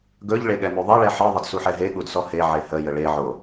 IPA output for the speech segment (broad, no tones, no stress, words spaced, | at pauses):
ɡɵʎ ɭeɠɛmyðˤɛ ɭɛħɯ ðˤədsuħɛɦe ɠudsɔhe ʕehə jəɭe ʕo